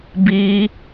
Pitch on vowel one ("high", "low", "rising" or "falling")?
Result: high